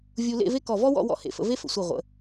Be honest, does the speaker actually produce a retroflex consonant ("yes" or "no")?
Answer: no